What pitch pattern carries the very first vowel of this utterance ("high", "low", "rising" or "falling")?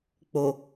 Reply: low